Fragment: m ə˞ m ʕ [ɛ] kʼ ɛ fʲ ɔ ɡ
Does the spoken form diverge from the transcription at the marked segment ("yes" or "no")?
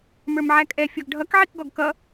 yes